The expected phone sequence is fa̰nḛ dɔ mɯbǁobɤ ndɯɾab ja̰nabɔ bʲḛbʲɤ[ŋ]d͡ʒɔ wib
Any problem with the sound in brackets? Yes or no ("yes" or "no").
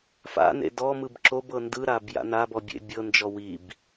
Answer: yes